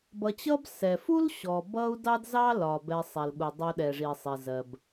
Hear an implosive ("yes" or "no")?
yes